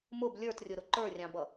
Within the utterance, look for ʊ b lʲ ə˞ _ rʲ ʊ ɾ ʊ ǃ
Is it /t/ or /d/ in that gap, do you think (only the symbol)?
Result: t